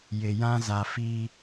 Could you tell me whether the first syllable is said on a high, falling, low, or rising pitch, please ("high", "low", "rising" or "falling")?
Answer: low